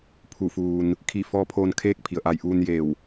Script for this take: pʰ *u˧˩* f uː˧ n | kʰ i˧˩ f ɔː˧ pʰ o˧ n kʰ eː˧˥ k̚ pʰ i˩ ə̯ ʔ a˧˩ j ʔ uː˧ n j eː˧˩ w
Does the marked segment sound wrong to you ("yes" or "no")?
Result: no